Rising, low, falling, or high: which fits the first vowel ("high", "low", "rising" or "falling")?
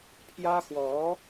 high